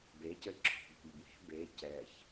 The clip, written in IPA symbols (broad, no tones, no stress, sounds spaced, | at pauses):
b e c ɘ ǁʰ o̤ b o̤ ʎ b w e̤ b e c ɛ ç